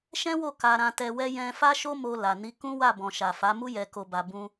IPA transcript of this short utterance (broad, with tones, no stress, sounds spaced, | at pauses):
ʃ ɛ̃˦ w o˦˨ k a˧ ɾ ã˧ t ɛ˧ w ɛ˦ j ɛ̃˧ f a˦ ʃ o˦ m o˧ l a˨ n i˨˦ k ũ˦ w a˦˨ b ɔ̃˨ ʃ a˨ f a˨˦ m u˦ j ɛ˧ k o˧ b a˧ b ũ˦